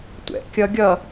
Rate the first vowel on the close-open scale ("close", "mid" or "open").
mid